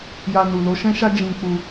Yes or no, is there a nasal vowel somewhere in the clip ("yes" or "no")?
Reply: yes